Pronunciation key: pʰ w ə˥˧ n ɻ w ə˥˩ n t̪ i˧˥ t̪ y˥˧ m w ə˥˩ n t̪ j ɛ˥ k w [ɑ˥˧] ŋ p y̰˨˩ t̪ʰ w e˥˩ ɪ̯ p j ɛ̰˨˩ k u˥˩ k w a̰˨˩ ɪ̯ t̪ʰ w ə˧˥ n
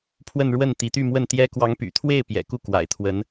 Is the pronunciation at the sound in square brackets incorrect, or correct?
incorrect